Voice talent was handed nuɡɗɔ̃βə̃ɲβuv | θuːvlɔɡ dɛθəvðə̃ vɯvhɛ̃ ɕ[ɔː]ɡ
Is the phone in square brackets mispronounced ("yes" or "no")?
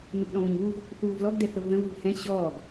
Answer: no